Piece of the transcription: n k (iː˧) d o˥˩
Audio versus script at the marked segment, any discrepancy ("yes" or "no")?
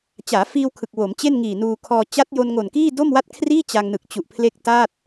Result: yes